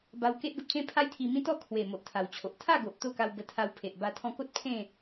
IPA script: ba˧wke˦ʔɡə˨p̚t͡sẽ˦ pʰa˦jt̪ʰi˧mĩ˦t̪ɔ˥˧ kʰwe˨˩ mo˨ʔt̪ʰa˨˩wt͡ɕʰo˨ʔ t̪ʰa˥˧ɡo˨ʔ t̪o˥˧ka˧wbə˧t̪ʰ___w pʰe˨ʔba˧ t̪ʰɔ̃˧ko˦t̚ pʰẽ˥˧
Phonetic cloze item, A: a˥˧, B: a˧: B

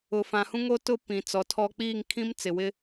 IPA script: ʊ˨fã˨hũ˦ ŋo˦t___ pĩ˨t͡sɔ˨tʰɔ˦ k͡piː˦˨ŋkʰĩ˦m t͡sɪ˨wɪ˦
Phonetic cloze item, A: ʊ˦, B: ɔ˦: A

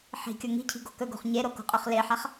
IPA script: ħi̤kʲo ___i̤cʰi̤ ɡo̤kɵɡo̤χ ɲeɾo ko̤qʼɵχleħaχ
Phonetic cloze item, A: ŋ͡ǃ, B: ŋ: B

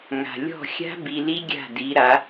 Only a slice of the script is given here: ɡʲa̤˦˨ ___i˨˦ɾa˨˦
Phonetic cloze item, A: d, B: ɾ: A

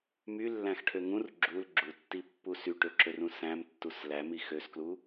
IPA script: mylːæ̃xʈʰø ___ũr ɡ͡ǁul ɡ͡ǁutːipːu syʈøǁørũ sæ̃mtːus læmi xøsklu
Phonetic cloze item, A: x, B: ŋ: B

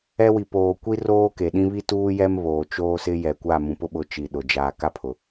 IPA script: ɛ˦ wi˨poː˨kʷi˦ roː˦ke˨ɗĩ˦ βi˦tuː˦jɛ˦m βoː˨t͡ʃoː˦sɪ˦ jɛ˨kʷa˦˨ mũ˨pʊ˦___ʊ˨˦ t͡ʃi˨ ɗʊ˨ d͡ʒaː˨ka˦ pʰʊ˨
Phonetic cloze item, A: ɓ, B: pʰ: A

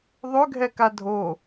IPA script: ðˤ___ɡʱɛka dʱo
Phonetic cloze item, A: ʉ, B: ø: B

